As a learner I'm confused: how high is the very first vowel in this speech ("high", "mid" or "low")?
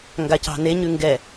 low